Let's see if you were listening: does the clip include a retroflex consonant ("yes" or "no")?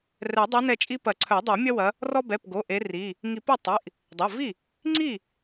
no